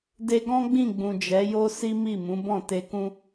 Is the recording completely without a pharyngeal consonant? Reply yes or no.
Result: yes